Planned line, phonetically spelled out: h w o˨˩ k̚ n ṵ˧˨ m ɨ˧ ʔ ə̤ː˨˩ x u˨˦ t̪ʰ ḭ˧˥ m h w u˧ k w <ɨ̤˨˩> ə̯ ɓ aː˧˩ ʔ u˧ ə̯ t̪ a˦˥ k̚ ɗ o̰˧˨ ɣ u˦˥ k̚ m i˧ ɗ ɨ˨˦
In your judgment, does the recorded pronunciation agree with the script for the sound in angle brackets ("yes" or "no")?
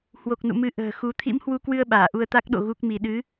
no